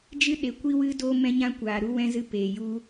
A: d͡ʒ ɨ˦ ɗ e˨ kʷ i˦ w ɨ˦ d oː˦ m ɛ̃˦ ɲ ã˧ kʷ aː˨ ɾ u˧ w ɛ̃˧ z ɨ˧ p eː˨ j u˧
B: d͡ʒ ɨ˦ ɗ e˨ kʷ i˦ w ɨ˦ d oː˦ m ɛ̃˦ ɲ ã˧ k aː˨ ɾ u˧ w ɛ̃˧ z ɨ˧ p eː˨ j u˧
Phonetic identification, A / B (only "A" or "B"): A